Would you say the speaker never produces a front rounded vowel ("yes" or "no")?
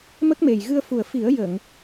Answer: yes